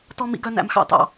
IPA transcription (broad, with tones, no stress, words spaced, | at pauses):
tɔ˥mḭ˥ɡœ˥ næ̰˥mxɑ̰˥tɑ̰˥